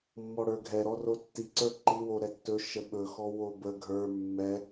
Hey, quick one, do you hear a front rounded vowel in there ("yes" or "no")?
no